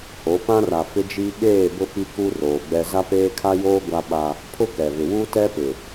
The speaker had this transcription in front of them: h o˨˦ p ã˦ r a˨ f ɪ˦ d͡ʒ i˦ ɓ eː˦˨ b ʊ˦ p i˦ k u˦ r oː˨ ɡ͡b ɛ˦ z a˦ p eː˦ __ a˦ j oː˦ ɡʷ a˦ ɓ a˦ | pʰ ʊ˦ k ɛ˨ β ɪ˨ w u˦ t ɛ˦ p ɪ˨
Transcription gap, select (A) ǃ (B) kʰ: B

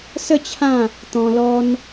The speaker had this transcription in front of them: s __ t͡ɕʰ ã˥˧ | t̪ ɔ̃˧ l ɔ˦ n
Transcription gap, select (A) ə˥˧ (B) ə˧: A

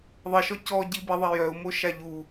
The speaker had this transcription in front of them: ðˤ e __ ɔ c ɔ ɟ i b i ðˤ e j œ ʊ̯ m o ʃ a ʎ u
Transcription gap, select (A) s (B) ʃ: B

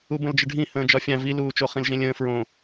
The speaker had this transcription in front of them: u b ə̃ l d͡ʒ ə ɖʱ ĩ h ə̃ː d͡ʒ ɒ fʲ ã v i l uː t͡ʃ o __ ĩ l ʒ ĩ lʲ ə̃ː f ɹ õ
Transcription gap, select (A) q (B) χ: B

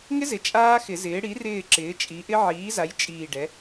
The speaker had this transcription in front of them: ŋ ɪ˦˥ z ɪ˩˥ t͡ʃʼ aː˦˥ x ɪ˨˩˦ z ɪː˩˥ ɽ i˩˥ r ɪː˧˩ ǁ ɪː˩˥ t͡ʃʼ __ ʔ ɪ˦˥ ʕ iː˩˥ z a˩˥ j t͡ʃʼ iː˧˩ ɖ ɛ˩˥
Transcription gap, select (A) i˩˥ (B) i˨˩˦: A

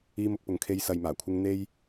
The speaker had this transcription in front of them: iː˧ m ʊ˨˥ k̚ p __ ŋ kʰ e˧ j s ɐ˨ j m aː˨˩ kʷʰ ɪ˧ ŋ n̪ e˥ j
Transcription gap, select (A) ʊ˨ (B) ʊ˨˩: A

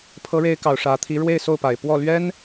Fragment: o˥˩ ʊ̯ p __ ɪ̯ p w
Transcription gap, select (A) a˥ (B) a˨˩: B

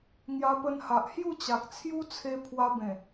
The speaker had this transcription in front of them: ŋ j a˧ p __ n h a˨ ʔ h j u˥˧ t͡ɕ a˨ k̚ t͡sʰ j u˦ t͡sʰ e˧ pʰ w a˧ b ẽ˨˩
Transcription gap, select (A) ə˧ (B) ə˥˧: A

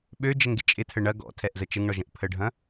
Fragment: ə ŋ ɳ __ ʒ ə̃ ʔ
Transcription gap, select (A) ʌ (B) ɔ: B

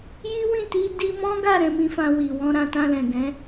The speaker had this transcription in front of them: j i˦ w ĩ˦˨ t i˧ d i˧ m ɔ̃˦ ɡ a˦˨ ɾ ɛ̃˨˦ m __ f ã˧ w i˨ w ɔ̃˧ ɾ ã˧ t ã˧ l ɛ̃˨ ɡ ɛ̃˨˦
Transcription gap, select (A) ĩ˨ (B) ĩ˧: B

